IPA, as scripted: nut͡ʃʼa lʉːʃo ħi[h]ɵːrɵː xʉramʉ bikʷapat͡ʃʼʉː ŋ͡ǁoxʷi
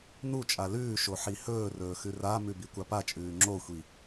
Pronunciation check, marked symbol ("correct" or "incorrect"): correct